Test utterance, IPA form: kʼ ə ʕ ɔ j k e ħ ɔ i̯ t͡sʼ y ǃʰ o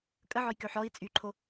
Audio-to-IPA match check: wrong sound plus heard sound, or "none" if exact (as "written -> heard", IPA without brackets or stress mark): e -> ø